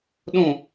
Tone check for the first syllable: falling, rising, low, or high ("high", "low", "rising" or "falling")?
falling